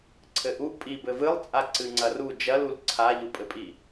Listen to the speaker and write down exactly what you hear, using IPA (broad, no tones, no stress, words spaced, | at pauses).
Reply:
ǀʰɘʔuʔ pʼibɘ vɨlˠt͡sʼa ǀɨŋ͡ǀɐru d͡ʒɐlul ǀʰaʎupʼɘpʼi